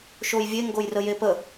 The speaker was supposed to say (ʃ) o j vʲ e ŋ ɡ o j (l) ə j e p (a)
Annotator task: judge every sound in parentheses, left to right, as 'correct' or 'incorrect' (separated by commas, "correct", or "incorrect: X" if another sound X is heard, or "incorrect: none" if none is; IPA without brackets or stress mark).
correct, incorrect: r, incorrect: ə